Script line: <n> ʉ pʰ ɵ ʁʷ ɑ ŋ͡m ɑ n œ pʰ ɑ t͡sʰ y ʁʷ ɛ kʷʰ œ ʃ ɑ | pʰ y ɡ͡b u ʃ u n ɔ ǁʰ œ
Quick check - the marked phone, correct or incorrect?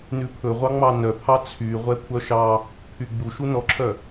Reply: correct